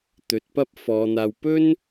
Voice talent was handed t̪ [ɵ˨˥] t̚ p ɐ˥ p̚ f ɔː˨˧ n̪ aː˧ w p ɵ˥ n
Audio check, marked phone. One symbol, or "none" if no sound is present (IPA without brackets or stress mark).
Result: ɵ˨˥